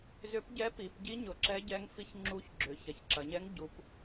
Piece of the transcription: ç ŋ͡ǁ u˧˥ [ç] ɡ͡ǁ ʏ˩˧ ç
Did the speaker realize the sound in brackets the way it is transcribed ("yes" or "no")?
yes